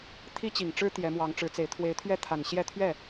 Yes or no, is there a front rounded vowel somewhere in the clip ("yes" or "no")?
no